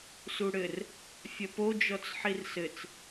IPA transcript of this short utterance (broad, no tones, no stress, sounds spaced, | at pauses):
s u ɽ ɘ r | fʲ ɐ p o d͡ʒ ɔ t͡s ħ i r s ɘ t͡s